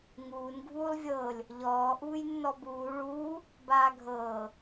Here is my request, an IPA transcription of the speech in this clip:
ŋuːn ɡʱuːlˠvʲɤːlʲ | ʎɔː ʔuːjnːɔbuː ɭuː | baːɡʱɤː

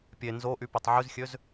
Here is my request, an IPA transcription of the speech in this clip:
pʲe nzoʔypøtˤ ʕyzxʲøz

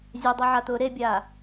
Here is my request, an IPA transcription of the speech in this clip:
zʲɛdˤɛʕat̪ʊː ɾebʲaː

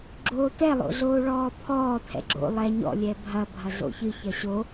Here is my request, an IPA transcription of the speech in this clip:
ɡ͡ǁoːtɛ lˠo̰ɮoːɭɔːpʰɔː tʰɛ̰ɡ͡ǁo̰ lˠɛ ɲɔ̰ lʲɛbʱɐ bʱɐɮo̰çɨ çɐɕo

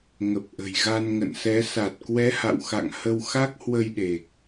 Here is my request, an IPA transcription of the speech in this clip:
ŋə˨˩p̚ʔə̤˨˩j ɣa˧nŋə̰˧˨nsɛ˨˦ sa˨˩t̚kwɛ˨˦ha̰˧˨wxa̰˧˨ŋ hə˧wxa˦˥k̚hwə˧jɗe˨˩k̚

